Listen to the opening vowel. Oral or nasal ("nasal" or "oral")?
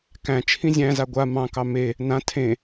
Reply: nasal